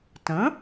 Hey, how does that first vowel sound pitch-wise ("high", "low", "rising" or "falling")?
rising